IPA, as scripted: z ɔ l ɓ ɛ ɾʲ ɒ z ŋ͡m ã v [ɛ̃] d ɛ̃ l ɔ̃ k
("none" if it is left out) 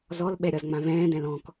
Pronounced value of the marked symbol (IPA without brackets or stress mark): ɛ̃ː